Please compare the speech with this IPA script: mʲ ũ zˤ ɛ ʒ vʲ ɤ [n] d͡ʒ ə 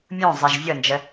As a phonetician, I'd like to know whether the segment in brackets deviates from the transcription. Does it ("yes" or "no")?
no